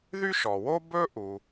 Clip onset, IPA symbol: ð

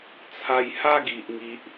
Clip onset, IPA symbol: t͡sʰ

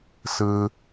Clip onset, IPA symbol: s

